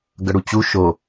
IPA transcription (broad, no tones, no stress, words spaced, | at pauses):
ɡʌɽut͡ɕu ʃo